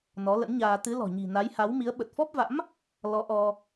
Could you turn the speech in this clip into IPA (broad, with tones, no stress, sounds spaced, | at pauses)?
n ɔ˨˦ l ə̰˧˥ n ɲ aː˧ t̪ ɨ˨˦ l ɔ̤˨˩ ɲ i̤˨˩ n a˨˦ j h a˨˦ w m i˨˦ ə̯ ɓ ə˨˩ t̚ f ɔ˦˥ p̚ v a̰˧˥ m | l ɔ˨˦ ʔ ɔ˧